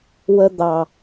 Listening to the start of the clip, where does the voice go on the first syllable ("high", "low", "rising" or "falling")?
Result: high